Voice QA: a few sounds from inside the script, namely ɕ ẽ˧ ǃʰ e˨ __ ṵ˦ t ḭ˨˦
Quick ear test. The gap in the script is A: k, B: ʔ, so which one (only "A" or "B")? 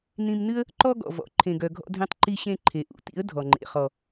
B